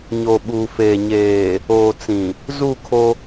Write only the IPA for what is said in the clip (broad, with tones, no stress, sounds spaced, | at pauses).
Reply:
ɲ o˨ ɓ uː˨ f eː˨ ɲ eː˨ | oː˨ t͡s ĩ˨ | z u˦˨ kʰ o˦